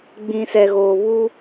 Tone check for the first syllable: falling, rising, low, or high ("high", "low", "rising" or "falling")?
low